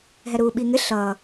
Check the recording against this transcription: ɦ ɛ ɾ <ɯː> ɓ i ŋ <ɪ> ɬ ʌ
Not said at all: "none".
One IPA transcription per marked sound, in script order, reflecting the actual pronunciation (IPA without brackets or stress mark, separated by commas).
uː, ɪ